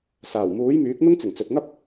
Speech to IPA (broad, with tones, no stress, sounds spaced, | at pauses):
s aː˨˩ w m uː˨˥ j m yː˨˥ k̚ n̪ ʊ˥ ŋ t͡s ɪ˨˩ ŋ t͡s ɵ˨ t̚ ŋ ɐ˥ p̚